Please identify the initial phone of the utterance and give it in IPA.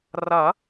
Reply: r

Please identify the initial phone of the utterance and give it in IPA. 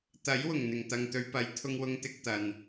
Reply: t̪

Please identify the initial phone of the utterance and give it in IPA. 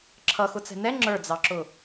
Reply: ǁʰ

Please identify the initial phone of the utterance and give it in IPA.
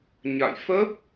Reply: ɲ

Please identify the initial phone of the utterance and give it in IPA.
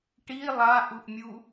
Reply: ʈ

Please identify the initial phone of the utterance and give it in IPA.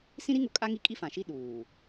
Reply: s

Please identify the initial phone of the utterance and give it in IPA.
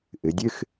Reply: ʔ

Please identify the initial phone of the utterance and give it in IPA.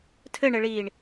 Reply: tʰ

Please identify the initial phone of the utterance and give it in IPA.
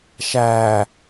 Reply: ʃ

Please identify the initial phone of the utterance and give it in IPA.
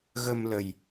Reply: ɣ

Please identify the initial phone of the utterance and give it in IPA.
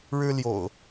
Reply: ɻ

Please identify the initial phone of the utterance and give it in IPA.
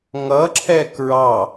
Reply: ŋ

